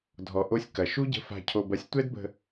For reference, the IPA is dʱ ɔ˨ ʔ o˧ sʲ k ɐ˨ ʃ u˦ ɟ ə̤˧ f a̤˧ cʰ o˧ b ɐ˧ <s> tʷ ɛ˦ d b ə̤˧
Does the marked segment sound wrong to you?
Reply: yes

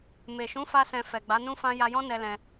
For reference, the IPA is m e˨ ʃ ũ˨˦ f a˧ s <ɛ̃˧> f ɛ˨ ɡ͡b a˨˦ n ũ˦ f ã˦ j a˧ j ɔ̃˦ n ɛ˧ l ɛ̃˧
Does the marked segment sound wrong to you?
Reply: no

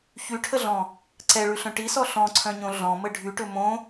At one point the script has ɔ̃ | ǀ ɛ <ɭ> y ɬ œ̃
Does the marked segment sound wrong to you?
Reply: no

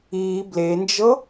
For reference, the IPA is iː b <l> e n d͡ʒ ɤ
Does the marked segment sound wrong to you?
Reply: no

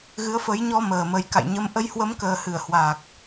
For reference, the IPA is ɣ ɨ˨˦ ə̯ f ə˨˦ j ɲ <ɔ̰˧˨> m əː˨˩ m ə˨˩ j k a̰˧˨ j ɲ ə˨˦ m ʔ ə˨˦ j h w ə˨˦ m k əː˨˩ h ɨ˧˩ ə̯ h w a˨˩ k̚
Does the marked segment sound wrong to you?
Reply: yes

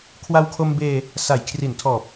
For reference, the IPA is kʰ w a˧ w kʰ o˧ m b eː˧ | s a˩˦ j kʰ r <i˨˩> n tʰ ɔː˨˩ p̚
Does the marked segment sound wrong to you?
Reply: yes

